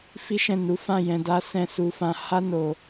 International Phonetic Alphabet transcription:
f i˦ ʃ ɛ̃˦˨ n u˨˦ f ã˦˨ j ɛ̃˧ d a˦ s ɛ̃˦˨ s u˧ f ã˧ h a˦ n o˧

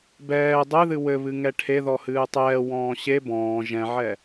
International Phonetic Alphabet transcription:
b ɛː dˤ ɨ ð ɨ w ɘ β ɨ ŋ ɛ ʈʰ e ð ɔ h ɨː tˤ ɛː w ɔ̃ː ɕ e b ɔ̃ː ʒ ɛ̃ ʕ ɛ

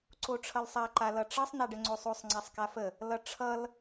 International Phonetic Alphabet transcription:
ǀ o ʈ͡ʂʰ ʌ l sˤ a ǃ a l ʌ ʈ͡ʂ ʌ sˤ n a ɖ ə ŋ͡ǀ o sˤ o sˤ ŋ͡ǀ a sˤ k a f ə | l ʌ ʈ͡ʂʰ ʌ l

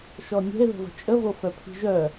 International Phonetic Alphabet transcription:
ʃ ɔ nʲ ɛ̤ e̯ ð ə̤ v ə̤ t͡ʃʼ ə v o f œ pʰ i̤ ʒ œ

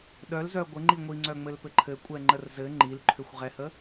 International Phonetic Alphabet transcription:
ɗ œ l z œ ɡʷ ɘ ŋ͡ǃ i ŋʷ i ŋ͡ǀ œ ŋ͡m ɘ l p ɘ ǃʰ ɘ kʷʼ ɛ ŋ͡ǃ ə r z ɘ ŋ͡ǃ i l ǃʰ ʏ xʷ ʁ ɛ h ə

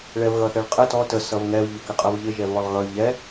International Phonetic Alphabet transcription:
ɭ ɛ v ɣ ʌ θ ɛ ɭ qʼ ə t ɔ t ə s ʌ v ŋ ɛ v ʎ ʊ k ɪ qʼ ʌ v ʎ ɪ ʒ ɛ v β ɔ lˠ ɣ ʌ y̯ ʎ ɛ

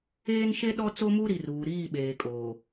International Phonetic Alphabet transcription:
eː˦ n ʃ e˦ ɗ ɔ˦ t͡s o˦ m u˦ ɾ i˨ r uː˨ ɾ iː˦˨ ɓ eː˨ kʼ oː˨

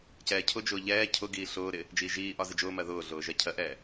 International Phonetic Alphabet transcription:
c ɛː cʰ ʊ d͡ʒ ʊː ʎ ɛː cʰ ʊ ɡ iː ɬ ʊː ɾ ɪ | d͡ʒ iː ʒ iː ʔ ɒ z ɪ d͡ʒ ʊː m ɜ ð ʊː ɮ ʊː ʒ ɜ cʰ ɜ ʔ ɛː

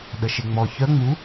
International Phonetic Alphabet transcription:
ɗ ə ʃ e ŋ͡m ɔ ç œ ŋ͡m u

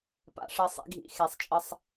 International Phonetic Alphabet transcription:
p a̰˩˧ ʂ ɜ˩˧ sˤ ḭ˩˧ ɡʱ ḭ˩˧ x e˩ sˤ t͡ʃʼ ə˧˩ sˤ

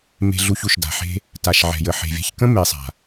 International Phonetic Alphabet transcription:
m e̤˧ ɮ u˧ ç u˨ ʃ d a̤˨ ħ e̤˦ | t a˨ ʃ ʕ ɛ̤˨ j ə˨ ħ e̤˨ vʲ a̤˧ ç k ə̃˦ m e˨ sˤ a̤˨

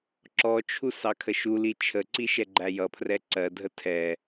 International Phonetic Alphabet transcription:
ǁ ɔ t͡ʃʰ u s ɑ kʰ ə ʃ u l i t͡ʃʰ ə ǀ i ʃ ɛ ɡ͡ǃ æ j ʌ pʰ r ɛ ǀ ɜ dʱ ə tʰ ɛ

